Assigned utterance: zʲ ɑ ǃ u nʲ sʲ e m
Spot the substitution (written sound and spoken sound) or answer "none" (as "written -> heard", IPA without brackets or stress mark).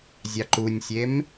none